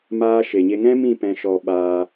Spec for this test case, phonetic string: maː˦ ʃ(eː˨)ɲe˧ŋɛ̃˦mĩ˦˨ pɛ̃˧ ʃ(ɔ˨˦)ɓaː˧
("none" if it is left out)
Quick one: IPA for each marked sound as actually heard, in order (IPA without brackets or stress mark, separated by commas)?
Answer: e˨, ɔ˧